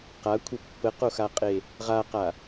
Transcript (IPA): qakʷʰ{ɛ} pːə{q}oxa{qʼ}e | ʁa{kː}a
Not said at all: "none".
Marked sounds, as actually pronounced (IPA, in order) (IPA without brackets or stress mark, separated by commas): ə, q, qʼ, q